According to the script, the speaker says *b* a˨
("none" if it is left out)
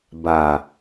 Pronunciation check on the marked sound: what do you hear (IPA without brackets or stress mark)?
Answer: b